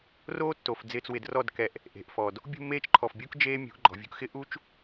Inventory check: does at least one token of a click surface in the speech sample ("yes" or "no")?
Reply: yes